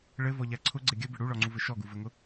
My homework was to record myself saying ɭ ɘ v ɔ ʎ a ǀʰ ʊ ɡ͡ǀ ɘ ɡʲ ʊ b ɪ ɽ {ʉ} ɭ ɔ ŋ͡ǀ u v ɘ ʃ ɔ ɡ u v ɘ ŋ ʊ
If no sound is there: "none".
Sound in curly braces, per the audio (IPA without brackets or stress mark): u